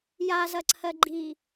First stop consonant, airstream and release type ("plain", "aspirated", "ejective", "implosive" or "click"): click